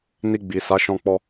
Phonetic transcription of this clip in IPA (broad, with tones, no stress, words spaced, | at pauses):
ni˧ɡ͡bi˨sa˨˦ ʃɔ̃˧k͡pɔ˧